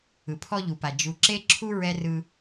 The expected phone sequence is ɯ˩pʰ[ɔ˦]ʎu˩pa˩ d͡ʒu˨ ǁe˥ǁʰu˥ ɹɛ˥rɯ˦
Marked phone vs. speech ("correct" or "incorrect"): correct